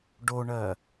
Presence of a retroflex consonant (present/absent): present